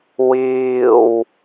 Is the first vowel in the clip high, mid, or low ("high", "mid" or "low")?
high